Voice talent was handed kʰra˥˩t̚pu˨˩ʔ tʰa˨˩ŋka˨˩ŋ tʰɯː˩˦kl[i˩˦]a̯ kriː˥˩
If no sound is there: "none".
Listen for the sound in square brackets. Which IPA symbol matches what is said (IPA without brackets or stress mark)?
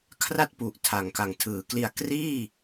i˧